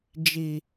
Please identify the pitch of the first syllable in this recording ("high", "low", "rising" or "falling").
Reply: low